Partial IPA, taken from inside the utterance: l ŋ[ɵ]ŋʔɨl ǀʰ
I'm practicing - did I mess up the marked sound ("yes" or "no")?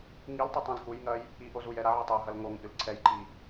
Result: yes